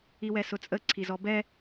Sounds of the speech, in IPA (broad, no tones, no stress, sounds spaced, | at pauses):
i w ɛ s ʊ t͡sʼ ə ǀʰ i z ɔ b ɛ